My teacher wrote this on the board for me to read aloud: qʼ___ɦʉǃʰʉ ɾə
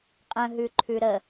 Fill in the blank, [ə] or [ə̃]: ə̃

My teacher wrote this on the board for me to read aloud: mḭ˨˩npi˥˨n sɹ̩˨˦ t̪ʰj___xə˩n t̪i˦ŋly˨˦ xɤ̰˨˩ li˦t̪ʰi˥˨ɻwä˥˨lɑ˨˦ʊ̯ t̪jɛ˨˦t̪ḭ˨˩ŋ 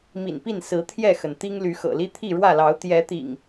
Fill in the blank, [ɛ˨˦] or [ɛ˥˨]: ɛ˥˨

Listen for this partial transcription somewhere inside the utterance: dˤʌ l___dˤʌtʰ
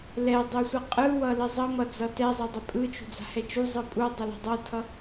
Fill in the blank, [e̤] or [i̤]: e̤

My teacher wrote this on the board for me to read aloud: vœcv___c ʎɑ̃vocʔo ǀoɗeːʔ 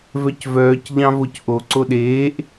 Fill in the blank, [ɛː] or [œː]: œː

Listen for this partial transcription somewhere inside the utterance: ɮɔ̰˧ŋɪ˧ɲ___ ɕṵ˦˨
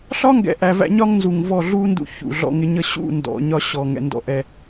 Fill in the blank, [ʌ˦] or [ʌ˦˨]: ʌ˦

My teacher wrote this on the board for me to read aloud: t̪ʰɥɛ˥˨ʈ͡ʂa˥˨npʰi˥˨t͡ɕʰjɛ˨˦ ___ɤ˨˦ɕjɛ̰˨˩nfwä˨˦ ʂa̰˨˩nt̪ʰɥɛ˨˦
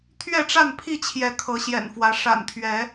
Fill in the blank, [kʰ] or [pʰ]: kʰ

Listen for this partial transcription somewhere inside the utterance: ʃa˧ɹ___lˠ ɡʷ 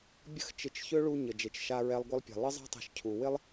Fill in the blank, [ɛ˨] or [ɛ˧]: ɛ˧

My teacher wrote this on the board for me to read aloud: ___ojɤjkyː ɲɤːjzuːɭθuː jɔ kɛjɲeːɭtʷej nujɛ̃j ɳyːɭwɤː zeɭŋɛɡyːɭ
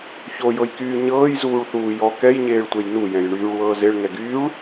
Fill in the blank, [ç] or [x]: ç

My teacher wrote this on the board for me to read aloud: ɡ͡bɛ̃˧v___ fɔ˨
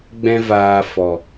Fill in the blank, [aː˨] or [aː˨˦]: aː˨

